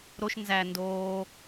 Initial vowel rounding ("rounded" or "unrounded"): rounded